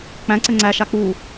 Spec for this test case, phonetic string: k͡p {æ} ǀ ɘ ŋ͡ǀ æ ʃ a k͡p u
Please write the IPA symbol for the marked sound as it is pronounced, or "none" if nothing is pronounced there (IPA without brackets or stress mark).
æ̃